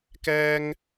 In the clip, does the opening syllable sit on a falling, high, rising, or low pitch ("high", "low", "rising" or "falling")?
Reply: high